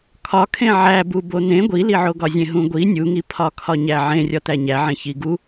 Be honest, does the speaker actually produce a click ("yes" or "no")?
no